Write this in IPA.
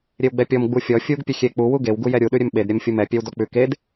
ɾʲ e w ɡ͡b ɛ pʲ ɔ m ɡ͡b u fʲ ɔ fʲ u ɡ pʲ ø xʲ e k͡p u w u ɡ e w ɡ u j ɛ ɾʲ u ɗ ʉ ɾʲ ø m ɓ e d ɾʲ ɛ m fʲ u m ɛ pʲ ɛ w d ɔ k͡p ʉ k e d

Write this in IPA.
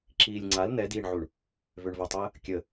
ǁ iː lʲ ŋ͡ǀ a l n̪ ɛ d iː ɳ ʕ u ɳ | v ø ɳ v ɐ tˤ əː | kʲ ə

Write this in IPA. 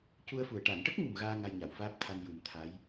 c u˧ ə̯ f u˨˩ ə̯ ʈ a˨˩˨ n ʈ ə˦˥ k̚ ŋ u˨˩ m ɣ aː˧ ŋ a˧ j ɲ a˨˩˨ w f aː˦˥ p̚ t̪ʰ a˧ n j u˨˩ m t̪ʰ a˧˥ j

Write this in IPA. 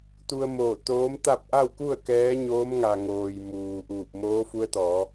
t̪ u˧ ə̯ m oː˧˩ t̪ oː˧˥ m t̪ a˥˨ p̚ ʔ a˥˨ w k u˥˨ ə̯ k ɛː˧˥ ɲ oː˧˥ m ŋ a˩ ŋ oː˩ j m uː˩ ʔ uː˧˩ p̚ m oː˧˥ f u˧˥ ə̯ t̪ ɔː˩˧

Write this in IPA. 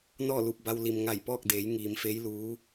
n ɔː˥˨ l u˧˩ p̚ b a˧ w l i˩ m ŋ a˧˩ j p ɔː˥˨ k̚ d eː˩˧ j ŋ iː˩˧ m f eː˧˥ j l uː˧˥

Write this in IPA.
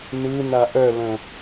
n ɯ n a ʔ œ l ə̃

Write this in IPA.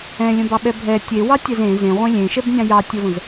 ɛ̃ lʲ ə̃ b ɑ ɓ ɛ bʱ ɛ tʲ e w ɑ tʲ ɛ z ẽ z ẽ ʁʷ ẽ lʲ ẽ ʃ ɛ b nʲ ɑ̃ j ɑ tʲ ə v ə̃ z

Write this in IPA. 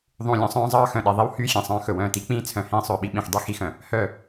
ðˤ ũ˨ lʲ œ̃˨ sˤ œ̃ː˦ zˤ ɑː˦ x œ̃˨ ɗ e˨ ðˤ i˦ w h yː˦ xʲ ẽ˨ sˤ œ̃ː˦ x ɵ˨ w œ̃ː˦˨ t i˦ k͡p ĩː˦ t͡sʰ œ̃˨ h ĩː˦ sˤ ɵː˨ ɓ i˦ ɓ ĩ˨ x dˤ i˦ x i˦ x œ̃˨ | h œ˦˨

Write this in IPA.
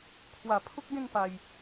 kʰ w a˨˩ pʰ u˦ k̚ ɡ ẽ˥˧ ŋ p a˨˩ j

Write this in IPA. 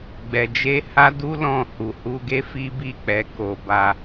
ɡ͡b ɛ˧ d͡ʒ e˦ h a˦ d u˦ l ɔ̃˦˨ h u˨ h u˧ ɡ e˦ f i˦ b i˦˨ k͡p ɛ˧ k o˧ b a˧

